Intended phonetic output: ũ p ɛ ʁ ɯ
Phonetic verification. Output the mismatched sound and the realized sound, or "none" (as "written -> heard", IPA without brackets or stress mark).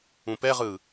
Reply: none